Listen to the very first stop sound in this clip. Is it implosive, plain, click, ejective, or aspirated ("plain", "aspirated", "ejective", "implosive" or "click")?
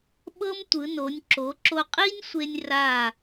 implosive